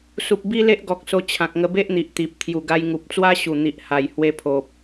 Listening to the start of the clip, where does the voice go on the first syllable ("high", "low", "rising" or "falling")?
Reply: low